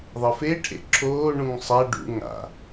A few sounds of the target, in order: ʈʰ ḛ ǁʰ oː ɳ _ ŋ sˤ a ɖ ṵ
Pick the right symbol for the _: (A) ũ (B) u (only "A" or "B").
A